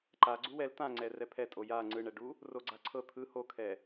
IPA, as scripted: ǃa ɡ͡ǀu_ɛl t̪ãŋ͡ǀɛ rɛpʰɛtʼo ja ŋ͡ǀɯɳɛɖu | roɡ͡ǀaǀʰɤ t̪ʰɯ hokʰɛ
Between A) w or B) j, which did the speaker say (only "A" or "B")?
A